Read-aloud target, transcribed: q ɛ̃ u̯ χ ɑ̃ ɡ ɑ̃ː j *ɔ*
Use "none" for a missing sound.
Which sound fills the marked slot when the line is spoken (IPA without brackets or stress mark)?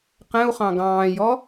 ɔ